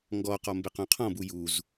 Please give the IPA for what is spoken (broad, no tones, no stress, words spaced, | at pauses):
ŋɡɔqɔ mbeqõqʰɔ̃bu juz